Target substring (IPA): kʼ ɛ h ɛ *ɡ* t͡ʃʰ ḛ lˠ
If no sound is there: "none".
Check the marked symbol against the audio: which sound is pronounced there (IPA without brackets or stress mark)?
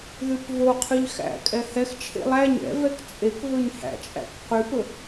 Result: x